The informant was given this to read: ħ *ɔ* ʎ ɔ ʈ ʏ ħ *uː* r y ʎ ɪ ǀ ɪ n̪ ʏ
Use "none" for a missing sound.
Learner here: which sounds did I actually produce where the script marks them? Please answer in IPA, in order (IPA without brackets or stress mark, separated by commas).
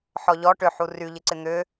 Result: ɔ, u